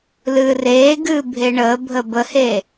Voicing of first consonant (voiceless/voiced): voiced